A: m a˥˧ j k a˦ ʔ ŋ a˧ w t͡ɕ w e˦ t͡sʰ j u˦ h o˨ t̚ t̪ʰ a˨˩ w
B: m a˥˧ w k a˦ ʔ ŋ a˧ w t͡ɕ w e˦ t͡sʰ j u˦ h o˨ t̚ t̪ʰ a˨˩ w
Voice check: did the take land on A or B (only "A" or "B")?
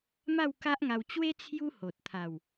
B